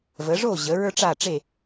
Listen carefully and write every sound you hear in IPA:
və˩˧ʐo˥˨ʑə˩˧ ɹə˞˥ʈ͡ʂa˥˨ʈ͡ʂe˥˨

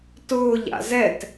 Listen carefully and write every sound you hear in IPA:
tʊːʎa̰ zɛt

